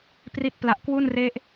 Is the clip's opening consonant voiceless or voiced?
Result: voiceless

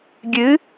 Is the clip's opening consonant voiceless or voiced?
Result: voiced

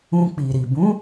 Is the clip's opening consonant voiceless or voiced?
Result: voiceless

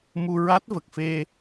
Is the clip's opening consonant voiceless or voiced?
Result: voiced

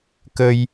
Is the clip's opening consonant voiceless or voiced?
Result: voiceless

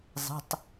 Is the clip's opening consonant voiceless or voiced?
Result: voiced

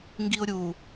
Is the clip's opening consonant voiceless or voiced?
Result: voiced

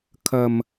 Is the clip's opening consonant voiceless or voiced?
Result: voiceless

